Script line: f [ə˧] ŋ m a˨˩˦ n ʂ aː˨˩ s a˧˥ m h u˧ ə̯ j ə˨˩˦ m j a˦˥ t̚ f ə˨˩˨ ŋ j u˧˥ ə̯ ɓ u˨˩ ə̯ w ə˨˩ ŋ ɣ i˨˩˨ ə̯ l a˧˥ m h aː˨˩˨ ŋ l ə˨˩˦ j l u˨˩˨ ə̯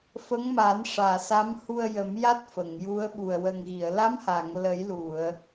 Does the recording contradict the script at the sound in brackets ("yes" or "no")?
yes